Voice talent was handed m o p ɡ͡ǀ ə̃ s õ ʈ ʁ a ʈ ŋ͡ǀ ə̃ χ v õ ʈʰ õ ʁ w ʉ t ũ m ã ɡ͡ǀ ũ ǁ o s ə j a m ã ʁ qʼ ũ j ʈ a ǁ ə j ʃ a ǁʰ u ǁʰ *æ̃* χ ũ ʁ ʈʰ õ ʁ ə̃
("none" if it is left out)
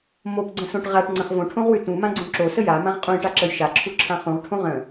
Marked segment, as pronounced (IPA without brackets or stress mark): ã